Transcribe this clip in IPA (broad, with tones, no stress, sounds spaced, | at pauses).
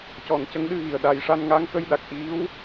c ɔ˨˩˨ n c ə˧˥ ŋ ɗ ɨ˧ ɣ i˨˩ ə̯ ɗ a˧ j ʂ a˧ n ŋ a˧˥ ŋ k ə˧ j ɗ a˨˩ k̚ ʔ i˧˥ w